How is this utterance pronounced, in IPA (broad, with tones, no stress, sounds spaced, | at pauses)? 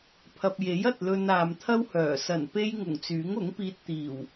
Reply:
pʰ ɐ˨ p̚ j e˨˥ j ɐ˨ t̚ l ɵ˧ n aː˨ m t̪ʰ ɐ˥ w h œː˨˩ s ɐ˨˩ n p e˧ j ŋ ʊ˨˩ ŋ t͡s yː˨˥ ŋ ʊ˨˥ ŋ p iː˧ t̚ t̪ iː˨˩ w